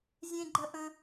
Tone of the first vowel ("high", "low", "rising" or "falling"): high